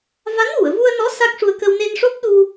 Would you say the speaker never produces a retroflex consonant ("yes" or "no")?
no